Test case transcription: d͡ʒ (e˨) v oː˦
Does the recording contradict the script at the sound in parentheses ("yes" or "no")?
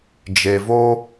no